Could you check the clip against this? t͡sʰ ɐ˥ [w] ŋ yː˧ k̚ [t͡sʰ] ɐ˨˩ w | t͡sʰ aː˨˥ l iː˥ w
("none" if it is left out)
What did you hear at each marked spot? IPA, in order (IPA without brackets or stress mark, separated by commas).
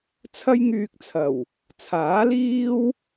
j, t͡sʰ